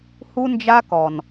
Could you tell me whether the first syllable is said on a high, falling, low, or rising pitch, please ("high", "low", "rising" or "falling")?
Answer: high